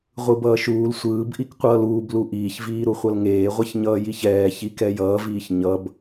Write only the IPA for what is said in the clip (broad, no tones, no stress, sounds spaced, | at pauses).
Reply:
ʁʷ ɯ b ʌː ʃ uː l sʷ ɯː b ʔ i k qʷ ʌː l uː b l u ʔ iː ç v iː ɾ u χʷ ʌ l ŋ eː ʁʷ ɛ ç ɲ ʌː j i ç ɛː ç i k ɛ j ʌː v iː ç ɲ ʌ b